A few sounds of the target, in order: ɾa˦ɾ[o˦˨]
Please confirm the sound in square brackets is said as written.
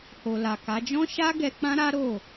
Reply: yes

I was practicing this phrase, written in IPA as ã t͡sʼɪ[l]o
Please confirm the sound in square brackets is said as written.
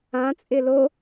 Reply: yes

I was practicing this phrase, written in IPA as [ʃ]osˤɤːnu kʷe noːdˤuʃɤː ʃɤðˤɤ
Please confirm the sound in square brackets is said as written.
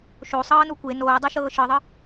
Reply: yes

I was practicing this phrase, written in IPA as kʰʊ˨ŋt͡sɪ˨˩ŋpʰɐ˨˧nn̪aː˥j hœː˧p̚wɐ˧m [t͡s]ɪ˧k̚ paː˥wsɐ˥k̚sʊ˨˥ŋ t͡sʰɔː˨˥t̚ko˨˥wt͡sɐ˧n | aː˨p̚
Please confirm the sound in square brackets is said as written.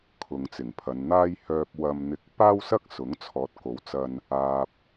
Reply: no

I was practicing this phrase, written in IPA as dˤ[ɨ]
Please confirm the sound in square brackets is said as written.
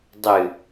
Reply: yes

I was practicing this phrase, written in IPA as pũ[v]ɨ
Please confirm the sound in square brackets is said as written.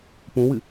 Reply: no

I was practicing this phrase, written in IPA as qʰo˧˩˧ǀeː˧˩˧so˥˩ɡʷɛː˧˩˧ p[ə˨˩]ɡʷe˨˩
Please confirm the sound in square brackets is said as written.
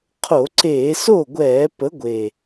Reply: no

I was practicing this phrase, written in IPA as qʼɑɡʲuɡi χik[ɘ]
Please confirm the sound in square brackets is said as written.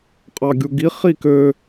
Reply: no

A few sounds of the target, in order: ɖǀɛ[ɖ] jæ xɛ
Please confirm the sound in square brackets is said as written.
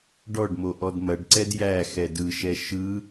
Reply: no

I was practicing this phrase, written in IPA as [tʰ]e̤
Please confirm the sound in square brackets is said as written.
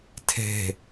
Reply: yes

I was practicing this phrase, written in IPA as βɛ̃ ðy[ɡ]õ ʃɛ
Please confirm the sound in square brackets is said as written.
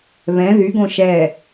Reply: yes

